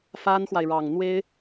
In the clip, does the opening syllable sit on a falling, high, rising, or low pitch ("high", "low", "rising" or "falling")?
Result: high